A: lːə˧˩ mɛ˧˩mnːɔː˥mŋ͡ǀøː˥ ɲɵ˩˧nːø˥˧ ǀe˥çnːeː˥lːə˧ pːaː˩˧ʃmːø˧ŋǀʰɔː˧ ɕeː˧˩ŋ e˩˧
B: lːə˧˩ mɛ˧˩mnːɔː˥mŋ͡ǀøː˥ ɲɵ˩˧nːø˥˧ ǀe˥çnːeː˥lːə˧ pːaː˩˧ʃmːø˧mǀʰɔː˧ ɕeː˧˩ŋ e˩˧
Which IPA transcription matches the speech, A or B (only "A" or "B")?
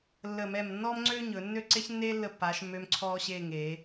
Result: B